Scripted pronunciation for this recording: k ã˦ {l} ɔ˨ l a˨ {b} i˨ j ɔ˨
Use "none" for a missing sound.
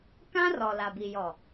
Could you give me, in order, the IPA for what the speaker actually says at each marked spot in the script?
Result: r, b

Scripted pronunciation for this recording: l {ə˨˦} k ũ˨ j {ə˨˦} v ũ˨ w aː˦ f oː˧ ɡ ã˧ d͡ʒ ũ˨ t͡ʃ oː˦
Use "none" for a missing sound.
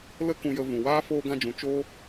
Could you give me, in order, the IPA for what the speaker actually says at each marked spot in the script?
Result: ə˧, ə˨

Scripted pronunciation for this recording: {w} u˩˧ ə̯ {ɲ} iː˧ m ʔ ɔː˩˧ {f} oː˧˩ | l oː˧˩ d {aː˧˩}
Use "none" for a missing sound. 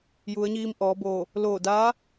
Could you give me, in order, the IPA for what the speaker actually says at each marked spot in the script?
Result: j, ɲ, b, aː˧˥

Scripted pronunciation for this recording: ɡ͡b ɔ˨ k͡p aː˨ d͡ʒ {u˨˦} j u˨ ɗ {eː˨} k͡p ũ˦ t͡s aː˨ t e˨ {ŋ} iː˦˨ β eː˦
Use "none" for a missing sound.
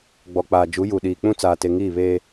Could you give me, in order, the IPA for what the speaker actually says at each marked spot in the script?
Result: u˨˦, iː˨, ŋ

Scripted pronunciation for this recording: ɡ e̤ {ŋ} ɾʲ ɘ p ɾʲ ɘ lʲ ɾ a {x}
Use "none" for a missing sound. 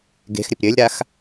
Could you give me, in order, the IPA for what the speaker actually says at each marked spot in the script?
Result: x, x

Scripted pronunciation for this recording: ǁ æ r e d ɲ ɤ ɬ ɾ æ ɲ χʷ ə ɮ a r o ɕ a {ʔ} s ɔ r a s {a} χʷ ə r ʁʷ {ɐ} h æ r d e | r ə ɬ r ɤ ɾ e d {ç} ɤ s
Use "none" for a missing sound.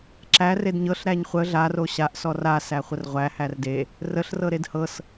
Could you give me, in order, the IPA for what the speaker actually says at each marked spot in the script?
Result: ʔ, æ, æ, h

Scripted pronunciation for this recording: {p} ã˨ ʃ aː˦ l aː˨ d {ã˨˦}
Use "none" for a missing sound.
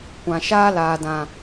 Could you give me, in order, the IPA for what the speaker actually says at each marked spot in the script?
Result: kʷ, ã˨

